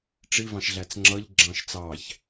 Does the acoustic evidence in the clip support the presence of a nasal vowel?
yes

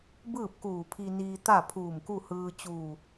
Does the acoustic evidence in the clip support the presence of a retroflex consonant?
no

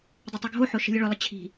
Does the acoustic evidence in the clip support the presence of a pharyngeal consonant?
yes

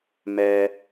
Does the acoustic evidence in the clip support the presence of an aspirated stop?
no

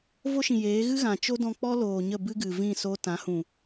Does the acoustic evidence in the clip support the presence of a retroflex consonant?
no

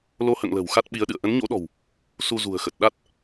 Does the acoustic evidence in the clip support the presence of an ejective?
no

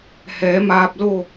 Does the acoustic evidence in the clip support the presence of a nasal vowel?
no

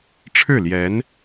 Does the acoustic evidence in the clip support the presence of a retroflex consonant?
yes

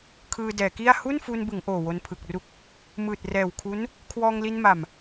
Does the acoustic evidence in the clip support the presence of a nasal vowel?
no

